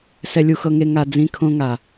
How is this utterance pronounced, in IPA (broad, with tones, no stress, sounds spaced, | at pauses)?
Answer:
s ɛ˧ lʲ u˧ x ɤ˧ ŋ e˧ ŋ a˧ d͡z ĩ˧ kʰ õ˧ ŋ a˨